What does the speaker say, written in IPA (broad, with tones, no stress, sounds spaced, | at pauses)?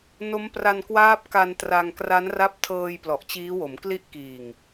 n o˦˥ m p r a˧ n k w aː˦˥ p̚ k a˧ n t r a˧ ŋ k r a˦˥ n r a˦˥ p̚ tʰ ɤː˧ j p l ɔ˨˩ ʔ t͡ɕ iː˦˥ w o˩˦ m k l i˥˩ ʔ k iː˨˩ ŋ